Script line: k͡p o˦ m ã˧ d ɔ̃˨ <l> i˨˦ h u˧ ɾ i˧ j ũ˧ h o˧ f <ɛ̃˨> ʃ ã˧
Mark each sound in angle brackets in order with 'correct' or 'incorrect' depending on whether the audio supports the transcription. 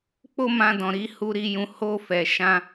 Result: incorrect: ɾ, incorrect: ɛ˨

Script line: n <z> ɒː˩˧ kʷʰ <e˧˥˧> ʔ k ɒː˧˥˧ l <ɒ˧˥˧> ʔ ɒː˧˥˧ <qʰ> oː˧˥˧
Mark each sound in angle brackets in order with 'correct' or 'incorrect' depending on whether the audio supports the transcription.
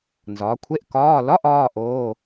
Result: correct, correct, correct, incorrect: ʔ

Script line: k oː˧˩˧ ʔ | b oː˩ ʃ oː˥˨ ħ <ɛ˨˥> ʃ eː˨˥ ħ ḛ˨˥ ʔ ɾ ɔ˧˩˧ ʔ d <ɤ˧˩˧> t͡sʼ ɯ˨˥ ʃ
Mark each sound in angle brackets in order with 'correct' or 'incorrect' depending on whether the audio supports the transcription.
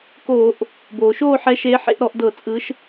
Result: correct, correct

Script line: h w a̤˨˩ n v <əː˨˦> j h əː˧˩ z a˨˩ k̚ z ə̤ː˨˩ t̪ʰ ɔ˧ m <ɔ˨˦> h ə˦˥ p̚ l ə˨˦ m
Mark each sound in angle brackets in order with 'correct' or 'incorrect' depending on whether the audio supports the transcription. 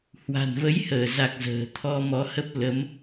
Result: incorrect: ə˨˦, correct

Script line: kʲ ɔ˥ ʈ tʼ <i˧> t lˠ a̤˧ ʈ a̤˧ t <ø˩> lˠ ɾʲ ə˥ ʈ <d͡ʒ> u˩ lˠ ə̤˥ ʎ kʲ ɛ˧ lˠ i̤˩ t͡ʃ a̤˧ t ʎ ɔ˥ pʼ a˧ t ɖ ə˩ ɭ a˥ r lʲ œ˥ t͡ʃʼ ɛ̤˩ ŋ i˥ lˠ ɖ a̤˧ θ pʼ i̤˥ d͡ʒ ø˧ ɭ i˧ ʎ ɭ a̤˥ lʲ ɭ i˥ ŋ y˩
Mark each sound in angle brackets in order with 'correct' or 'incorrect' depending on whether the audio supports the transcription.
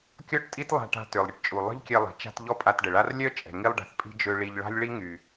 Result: incorrect: i˥, correct, incorrect: t͡ʃʼ

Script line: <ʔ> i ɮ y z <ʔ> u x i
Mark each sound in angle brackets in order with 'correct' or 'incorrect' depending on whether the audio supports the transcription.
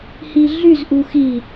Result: incorrect: h, correct

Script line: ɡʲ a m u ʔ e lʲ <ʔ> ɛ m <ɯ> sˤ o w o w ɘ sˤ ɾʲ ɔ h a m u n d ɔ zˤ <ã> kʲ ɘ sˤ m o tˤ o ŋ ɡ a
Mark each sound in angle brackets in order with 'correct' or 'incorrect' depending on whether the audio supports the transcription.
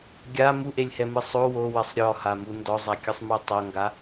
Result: incorrect: h, correct, incorrect: a

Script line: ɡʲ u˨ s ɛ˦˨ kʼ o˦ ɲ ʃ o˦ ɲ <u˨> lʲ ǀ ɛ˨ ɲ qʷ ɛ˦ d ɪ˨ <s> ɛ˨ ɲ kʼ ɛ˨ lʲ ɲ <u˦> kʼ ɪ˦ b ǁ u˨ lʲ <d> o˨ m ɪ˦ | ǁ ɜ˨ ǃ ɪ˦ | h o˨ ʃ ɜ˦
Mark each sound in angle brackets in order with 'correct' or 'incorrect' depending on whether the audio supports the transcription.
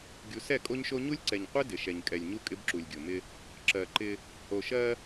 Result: incorrect: u˦, incorrect: ʃ, correct, incorrect: ɡʲ

